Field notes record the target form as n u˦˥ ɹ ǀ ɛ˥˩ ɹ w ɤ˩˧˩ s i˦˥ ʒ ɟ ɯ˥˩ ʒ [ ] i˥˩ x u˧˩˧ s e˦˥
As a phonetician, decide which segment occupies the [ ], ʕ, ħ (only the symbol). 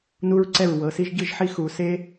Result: ħ